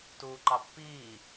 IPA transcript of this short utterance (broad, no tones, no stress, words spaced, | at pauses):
tuːǃɑpːiː